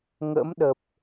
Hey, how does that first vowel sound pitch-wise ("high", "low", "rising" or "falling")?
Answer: rising